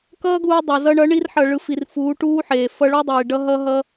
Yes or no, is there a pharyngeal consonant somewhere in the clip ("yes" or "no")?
yes